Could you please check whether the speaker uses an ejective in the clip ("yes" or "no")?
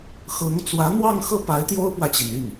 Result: no